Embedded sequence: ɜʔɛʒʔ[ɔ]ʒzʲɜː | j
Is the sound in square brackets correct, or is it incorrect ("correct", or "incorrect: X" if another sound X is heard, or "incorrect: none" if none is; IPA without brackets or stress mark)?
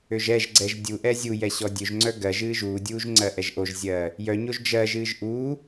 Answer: incorrect: o